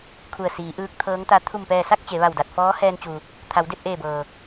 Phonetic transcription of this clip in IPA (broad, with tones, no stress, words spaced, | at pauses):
kʰu˧˩ə̯siː˩˧ ʔɯː˧˥k̚t̪ʰɤː˧˥ŋt̪a˧˥ t̪ʰu˧˩mpɛː˧˩sa˥˨k̚ t͡ɕe˩˧ʋa˧˩wda˧˩t̚fɔː˧˥ hɛː˧nt͡ɕu˩ | t̪ʰa˩˧wde˥˨p̚ʔeː˧˩bɤː˩